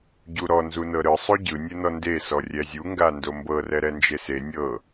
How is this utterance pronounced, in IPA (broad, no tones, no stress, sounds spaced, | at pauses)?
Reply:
ɟ u ɾ ɔ n z u n ɤ ɾ ɯ sˤ o ɟ ɯ nʲ ɯ n ɔ n d e s ɔ rʲ ɛ zʲ u ŋ ɡ a n d o m b ɤ r ɛ ɾ ɛ n d͡ʒ e s e nʲ ɤ